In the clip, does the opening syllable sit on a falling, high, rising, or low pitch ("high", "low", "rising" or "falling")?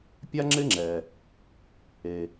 high